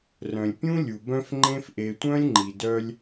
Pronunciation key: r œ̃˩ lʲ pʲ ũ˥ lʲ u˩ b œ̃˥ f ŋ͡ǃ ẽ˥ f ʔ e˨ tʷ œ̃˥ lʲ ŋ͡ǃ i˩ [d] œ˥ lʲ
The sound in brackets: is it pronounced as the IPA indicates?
yes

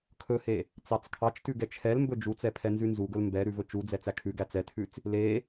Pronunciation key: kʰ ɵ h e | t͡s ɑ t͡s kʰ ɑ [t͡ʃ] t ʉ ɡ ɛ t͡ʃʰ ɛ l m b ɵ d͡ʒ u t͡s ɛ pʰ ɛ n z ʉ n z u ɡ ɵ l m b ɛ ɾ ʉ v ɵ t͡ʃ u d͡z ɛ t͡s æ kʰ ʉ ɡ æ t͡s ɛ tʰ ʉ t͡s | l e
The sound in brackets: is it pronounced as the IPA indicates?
yes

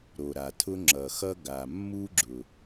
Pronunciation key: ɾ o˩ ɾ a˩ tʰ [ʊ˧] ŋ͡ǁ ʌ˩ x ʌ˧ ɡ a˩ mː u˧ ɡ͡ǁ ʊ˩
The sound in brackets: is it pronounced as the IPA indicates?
yes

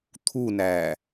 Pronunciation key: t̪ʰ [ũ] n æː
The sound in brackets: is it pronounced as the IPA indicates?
no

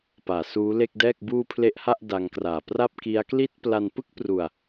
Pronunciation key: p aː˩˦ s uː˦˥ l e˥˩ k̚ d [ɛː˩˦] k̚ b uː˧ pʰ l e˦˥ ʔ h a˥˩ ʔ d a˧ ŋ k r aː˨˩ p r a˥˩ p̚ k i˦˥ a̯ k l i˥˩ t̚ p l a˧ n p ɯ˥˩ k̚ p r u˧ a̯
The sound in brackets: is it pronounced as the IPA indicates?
no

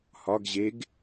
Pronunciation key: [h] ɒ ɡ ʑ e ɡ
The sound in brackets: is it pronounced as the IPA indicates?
yes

